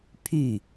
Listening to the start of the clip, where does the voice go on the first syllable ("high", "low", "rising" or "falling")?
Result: falling